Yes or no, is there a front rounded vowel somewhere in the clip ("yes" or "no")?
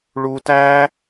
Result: no